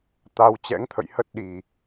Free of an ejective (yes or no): yes